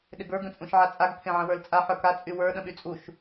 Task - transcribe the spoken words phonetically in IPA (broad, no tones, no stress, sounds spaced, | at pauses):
ɗ ɪ ɡ ə˞ ɡ ə̃ t͡sʼ ũ ʃ ʕ a t͡sʼ a ɡ pʰ ẽ ʕ ə̃ w ə˞ l t͡sʼ a ħ ə˞ k a t͡sʼ y w ə˞ ɗ ə̃ ɓ y t͡sʼ u ʃ